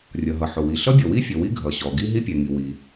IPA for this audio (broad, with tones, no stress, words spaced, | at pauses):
rʲʌ˩ɦʌ˩ħʊ˩wi˩ ɬʌ˥bʲʌ˩wi˥ fʲʌ˩wi˥ ɡʱʌ˩ɕɔ˩ ɡi˥ɦi˥pʲɛ˩ŋi˩ wi˩